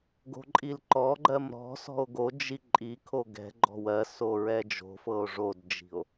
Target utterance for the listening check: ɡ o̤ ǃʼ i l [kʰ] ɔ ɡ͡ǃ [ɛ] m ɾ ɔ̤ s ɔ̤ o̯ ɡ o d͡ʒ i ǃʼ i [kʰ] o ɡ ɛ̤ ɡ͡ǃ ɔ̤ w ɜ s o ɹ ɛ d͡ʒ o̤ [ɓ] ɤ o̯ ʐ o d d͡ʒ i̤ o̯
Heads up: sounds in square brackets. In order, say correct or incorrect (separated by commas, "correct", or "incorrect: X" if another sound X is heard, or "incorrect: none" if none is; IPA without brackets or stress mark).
incorrect: ǃ, incorrect: ɜ, correct, incorrect: f